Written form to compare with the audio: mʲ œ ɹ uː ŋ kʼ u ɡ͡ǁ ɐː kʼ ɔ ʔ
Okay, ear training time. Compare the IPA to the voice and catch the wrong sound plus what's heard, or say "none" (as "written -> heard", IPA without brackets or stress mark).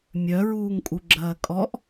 none